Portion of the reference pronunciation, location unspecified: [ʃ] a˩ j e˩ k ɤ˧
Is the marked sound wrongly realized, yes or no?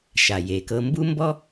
no